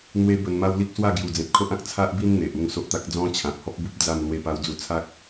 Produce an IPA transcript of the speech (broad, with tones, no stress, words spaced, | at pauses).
n̪we˦bə˧n ma˦wli˦k̚ swa˥˧ɡju˨˩d͡zẽ˨p̚kʰo˦ʔ ã˨k̚t͡sʰa˦ʔbi˦n n̪e˨ʔu˥˧ŋso˦ʔt̪a˦k̚ d͡zɔ̃˦t͡ɕʰã˨p̚hɔ˦p̚bu˦p̚ d͡za˥˧m lwe˦pa˦wd͡zu˦ t͡sʰa˦k̚